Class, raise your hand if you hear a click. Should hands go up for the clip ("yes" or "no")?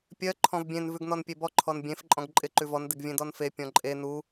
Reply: yes